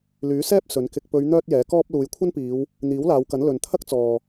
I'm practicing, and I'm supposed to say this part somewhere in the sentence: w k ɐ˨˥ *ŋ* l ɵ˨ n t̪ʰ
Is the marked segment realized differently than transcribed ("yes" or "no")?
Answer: yes